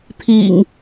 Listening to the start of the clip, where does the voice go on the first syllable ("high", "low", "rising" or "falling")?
low